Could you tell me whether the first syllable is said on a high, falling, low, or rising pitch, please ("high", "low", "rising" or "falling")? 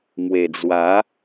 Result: low